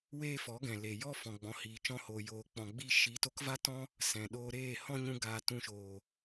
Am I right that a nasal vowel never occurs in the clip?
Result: no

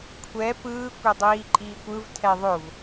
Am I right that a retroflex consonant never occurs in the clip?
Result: yes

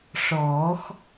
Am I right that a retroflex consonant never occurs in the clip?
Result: no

